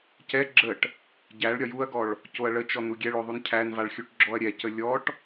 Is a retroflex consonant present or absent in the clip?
present